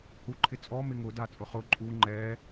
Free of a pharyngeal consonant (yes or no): yes